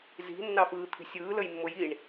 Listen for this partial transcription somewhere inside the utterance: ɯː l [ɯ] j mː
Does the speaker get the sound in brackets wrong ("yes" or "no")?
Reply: yes